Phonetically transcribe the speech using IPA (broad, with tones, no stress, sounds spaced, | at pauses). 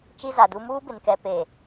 t͡ʃ i˦ z a˨ d u˦ m uː˦ b ɪ˨ n k ɛ˨ p e˨